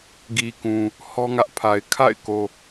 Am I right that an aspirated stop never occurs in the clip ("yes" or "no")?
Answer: no